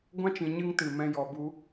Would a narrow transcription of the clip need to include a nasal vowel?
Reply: yes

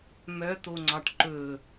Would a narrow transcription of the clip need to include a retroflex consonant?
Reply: yes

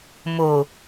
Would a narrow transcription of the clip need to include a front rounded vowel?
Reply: no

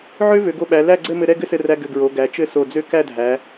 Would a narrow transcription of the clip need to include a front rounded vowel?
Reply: yes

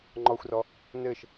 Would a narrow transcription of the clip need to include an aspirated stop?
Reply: no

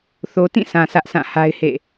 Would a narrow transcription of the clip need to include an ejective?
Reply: no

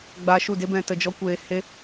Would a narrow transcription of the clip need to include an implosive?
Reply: no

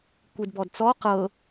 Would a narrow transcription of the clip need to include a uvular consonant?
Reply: yes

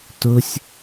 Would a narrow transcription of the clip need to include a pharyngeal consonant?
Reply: no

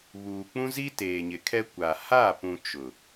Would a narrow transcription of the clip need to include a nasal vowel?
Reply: yes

